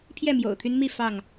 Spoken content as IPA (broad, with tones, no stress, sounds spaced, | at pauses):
pʰ j ɛ˥˨ m j o̰˨˩ ʊ̯ t̪ʰ y˦ n m i˥˨ f ɑ˥˨ ŋ